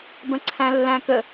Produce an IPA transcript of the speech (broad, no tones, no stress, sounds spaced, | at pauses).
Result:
b ə̃ ǀʰ æ̃ lː æ̃ k ə